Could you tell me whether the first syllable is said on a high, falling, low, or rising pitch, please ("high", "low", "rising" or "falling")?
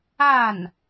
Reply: falling